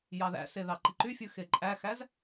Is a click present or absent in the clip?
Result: present